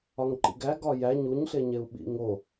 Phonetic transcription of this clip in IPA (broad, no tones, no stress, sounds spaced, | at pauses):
ɒ ŋ ǃ ḭ ɡ æ ɡ ɒ j æ ɲ u ɲ ɬ e ɲ e u̯ ɓ ḭ ŋ o